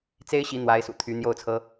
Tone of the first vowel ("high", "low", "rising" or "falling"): high